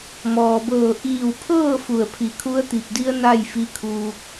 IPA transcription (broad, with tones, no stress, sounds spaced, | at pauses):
m ɔː˩ b ɤː˧˩ ʔ iː˧˩ w pʰ ɤː˥˨ f u˧˩ ə̯ pʰ i˧˩ kʰ u˧˥ ə̯ t̪ i˧˩ p̚ d i˧˥ ə̯ n a˥˨ j f i˧˥ kʰ uː˧ k̚